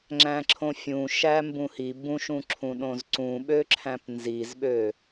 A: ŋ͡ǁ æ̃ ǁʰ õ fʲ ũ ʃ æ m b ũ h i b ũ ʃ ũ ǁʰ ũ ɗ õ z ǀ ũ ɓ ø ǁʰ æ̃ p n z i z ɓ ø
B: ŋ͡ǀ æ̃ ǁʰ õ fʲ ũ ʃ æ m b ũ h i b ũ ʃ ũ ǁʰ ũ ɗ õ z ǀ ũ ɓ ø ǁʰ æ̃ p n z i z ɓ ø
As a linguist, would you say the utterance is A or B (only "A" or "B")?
A